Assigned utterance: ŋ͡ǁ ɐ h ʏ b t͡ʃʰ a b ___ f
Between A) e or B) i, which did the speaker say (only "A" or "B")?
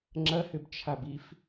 B